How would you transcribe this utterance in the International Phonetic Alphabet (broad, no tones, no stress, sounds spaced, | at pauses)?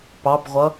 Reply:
p ɑ b ʁʷ ʌ